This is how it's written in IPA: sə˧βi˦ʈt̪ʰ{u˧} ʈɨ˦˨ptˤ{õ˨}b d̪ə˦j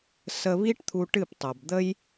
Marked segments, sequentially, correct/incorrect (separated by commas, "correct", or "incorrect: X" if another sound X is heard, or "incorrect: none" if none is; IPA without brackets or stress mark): correct, incorrect: o˨